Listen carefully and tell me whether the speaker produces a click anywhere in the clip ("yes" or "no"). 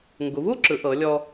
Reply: yes